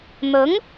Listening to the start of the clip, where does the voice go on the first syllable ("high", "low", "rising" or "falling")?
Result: rising